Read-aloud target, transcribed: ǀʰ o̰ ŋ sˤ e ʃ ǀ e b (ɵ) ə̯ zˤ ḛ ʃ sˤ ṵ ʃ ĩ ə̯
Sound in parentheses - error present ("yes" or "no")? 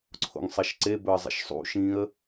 no